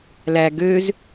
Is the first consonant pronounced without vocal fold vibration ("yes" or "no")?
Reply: no